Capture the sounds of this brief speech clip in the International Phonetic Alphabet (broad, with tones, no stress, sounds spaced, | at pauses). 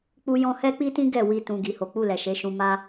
k͡p u˦ j ɔ̃˦ h ɛ˦ k͡p i˦ t ĩ˦ ɡ ɛ˦˨ w i˧ t ũ˨ ɡ i˨ h o˨˦ k͡p u˦˨ l ɛ˨ ʃ e˨˦ ʃ ũ˧ m a˦